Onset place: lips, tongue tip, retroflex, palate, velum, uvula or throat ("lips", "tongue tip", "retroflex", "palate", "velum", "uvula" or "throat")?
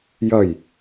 palate